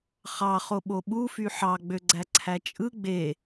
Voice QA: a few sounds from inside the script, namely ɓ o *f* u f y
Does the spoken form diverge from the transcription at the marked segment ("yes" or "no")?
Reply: yes